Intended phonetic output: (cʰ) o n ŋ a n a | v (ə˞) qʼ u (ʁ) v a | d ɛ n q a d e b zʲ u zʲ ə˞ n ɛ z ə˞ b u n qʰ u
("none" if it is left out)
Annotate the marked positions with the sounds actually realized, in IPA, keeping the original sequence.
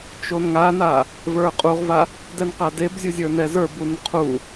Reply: t͡ʃ, ə˞, ʁ

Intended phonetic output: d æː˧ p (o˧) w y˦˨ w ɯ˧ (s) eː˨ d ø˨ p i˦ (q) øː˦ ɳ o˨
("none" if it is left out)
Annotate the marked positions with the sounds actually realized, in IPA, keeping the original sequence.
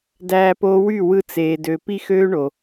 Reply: o˧, t͡s, x

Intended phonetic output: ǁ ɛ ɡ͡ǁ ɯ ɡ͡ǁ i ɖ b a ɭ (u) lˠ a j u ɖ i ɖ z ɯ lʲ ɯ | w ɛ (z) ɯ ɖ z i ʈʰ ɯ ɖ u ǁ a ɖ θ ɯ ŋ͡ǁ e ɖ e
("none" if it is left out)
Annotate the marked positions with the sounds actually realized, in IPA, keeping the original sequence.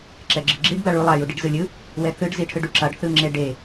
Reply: u, θ

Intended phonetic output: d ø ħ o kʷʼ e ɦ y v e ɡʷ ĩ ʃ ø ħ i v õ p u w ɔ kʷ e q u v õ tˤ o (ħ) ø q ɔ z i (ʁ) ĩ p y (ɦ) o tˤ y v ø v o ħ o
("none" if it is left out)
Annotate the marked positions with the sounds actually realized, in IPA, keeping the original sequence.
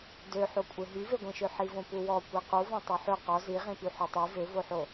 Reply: ħ, ʁ, ħ

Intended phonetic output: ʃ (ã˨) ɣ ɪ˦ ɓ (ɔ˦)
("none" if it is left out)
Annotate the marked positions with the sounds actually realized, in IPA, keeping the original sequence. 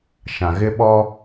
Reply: ã˨, ɔ˦

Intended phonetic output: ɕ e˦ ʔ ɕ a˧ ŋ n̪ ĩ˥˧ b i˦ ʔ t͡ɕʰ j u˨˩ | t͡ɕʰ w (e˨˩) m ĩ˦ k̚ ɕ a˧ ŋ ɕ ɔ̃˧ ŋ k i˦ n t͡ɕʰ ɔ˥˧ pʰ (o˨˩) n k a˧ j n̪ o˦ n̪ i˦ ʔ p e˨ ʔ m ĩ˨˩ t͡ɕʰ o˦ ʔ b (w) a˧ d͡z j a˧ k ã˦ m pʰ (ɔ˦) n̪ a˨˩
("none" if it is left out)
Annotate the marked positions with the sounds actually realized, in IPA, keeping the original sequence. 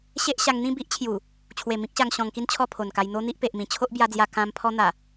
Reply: e˨˩, o˨˩, j, ɔ˦

